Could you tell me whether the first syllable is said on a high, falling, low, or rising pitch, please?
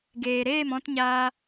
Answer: low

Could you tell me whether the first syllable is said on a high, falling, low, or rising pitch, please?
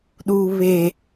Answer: low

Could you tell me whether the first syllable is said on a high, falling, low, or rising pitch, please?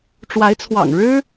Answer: rising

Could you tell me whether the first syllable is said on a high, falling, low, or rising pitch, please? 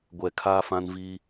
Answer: low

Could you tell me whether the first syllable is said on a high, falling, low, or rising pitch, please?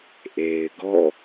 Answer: low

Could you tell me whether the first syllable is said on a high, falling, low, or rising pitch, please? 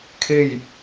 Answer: falling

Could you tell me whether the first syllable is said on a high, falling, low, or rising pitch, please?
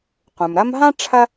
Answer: low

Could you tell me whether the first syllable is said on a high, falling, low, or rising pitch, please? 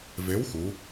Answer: rising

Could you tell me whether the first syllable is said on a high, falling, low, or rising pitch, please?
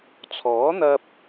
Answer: rising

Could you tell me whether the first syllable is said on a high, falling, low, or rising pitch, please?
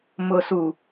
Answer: low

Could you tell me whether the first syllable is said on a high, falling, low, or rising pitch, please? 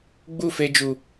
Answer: falling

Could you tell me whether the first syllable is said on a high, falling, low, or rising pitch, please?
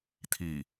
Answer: low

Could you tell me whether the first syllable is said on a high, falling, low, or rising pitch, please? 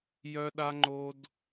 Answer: high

